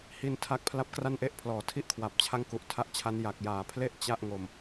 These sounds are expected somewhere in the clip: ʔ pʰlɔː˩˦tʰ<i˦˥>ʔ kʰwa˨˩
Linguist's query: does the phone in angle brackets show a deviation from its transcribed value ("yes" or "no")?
yes